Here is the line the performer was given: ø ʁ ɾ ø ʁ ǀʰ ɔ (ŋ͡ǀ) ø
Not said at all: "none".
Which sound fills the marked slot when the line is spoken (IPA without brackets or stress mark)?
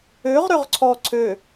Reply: ǀʰ